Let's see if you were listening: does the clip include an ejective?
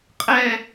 yes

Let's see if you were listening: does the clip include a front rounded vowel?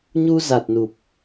no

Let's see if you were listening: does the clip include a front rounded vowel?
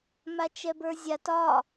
no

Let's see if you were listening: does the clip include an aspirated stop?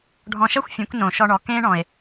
no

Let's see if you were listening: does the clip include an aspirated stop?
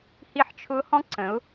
yes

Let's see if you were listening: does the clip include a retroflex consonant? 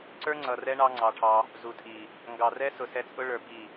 yes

